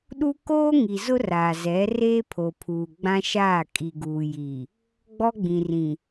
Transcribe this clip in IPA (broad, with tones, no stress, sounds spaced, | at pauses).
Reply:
ɗ u˦ k oː˦ ŋ i˨ z ʊ˦ r aː˨ z ɛ˨˦ r eː˦ pʰ o˨ pʰ uː˨ ɡ͡b ã˦ ʃ aː˦˨ kʼ i˨ ɡ uː˨ j i˨ | ɡ͡b ɔ˦ ɡ͡b ĩ˨ r ĩ˨